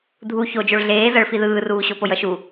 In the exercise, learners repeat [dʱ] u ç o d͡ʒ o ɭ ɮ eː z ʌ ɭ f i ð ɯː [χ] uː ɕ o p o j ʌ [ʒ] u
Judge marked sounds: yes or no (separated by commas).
yes, no, no